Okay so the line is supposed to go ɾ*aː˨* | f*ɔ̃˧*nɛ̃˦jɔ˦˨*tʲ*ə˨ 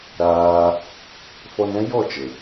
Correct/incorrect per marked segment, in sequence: incorrect, incorrect, incorrect

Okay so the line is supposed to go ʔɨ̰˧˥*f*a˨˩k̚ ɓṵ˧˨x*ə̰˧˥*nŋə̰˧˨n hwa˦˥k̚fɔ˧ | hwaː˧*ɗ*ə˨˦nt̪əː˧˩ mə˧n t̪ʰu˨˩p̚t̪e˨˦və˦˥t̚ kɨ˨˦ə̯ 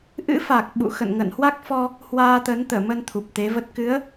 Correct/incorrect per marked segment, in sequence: correct, incorrect, incorrect

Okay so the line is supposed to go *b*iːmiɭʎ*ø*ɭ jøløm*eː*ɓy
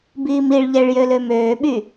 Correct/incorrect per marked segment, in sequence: correct, incorrect, incorrect

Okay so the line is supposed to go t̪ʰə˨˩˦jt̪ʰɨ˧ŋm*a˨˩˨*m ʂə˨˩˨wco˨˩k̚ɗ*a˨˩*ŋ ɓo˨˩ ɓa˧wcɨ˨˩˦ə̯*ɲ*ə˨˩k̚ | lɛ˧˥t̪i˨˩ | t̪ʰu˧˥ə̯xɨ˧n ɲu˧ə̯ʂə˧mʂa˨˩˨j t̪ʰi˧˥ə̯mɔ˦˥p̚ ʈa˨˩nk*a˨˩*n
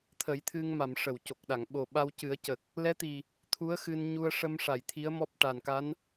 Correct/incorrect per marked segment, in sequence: correct, incorrect, incorrect, incorrect

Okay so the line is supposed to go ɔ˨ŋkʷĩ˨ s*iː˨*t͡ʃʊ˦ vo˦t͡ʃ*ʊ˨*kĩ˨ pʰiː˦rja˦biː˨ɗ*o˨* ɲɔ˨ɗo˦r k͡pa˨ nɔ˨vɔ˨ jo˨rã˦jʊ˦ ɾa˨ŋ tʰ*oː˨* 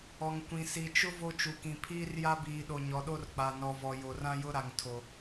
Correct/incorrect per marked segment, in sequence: incorrect, incorrect, correct, incorrect

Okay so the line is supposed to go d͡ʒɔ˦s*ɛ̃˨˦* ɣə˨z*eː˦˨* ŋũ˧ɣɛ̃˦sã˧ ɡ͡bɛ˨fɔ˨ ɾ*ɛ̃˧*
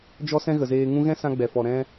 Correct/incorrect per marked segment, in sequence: incorrect, incorrect, correct

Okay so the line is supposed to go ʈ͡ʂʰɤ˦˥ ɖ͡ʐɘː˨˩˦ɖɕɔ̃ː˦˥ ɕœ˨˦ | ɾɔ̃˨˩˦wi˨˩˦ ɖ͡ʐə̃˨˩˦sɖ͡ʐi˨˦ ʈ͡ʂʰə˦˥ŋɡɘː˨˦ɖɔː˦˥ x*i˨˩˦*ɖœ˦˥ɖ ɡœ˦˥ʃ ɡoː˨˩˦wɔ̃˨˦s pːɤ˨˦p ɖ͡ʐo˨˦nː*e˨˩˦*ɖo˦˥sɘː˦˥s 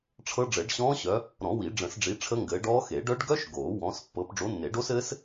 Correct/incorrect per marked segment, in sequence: incorrect, correct

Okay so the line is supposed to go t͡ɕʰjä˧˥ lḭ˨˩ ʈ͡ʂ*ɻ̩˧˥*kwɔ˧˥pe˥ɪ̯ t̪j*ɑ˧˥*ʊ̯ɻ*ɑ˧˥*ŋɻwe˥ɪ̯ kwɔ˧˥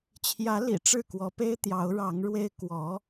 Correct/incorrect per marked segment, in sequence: incorrect, correct, correct

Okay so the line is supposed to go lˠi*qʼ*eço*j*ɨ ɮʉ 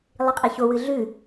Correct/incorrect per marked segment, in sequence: correct, incorrect

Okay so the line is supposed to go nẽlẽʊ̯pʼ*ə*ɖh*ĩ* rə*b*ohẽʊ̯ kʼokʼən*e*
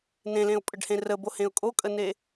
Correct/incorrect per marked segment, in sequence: correct, incorrect, correct, correct

